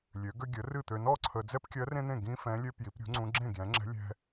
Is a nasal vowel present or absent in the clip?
present